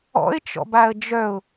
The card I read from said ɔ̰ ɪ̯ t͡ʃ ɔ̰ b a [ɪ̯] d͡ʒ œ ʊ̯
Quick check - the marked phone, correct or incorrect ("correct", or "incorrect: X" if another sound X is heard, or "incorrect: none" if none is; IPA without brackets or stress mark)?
incorrect: ə̯